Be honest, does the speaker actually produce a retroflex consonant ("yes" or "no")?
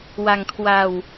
no